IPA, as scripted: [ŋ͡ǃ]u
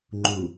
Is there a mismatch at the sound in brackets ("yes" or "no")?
no